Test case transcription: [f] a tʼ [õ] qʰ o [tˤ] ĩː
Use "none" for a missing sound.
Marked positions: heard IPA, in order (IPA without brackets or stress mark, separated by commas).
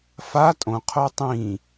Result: f, õ, tˤ